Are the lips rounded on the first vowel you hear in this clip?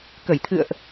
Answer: no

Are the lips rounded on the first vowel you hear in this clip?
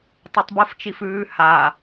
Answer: yes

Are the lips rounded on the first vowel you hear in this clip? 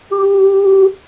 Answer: yes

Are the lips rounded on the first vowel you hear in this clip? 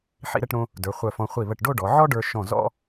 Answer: no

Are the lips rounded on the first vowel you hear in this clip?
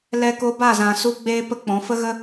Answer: no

